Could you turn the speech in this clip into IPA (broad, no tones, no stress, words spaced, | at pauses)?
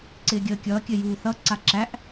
ǀɪːɡʲəːkʲʌː kʲɘjuːθʌ ǀaǁæʔ